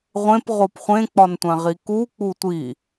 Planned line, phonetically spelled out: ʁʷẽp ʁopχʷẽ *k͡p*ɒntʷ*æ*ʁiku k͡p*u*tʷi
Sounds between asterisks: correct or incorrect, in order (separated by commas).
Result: correct, incorrect, correct